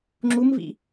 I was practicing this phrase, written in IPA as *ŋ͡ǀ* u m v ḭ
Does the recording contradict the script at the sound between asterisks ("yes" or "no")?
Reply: yes